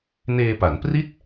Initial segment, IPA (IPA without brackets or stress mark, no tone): n